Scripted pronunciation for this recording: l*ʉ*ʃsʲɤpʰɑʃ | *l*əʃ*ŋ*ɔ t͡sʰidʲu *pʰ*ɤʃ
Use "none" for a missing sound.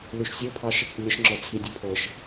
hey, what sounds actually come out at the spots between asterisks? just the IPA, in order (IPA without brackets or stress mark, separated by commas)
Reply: ʉ, lʲ, ŋ͡ǁ, pʰ